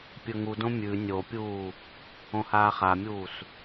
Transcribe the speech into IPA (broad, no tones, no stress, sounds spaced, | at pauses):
pʲ ɵ ŋ u d õ mʲ ʉ nʲ o pʲ uː | õ h aː χ a mʲ uː s